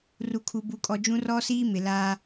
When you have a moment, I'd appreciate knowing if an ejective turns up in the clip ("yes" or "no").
yes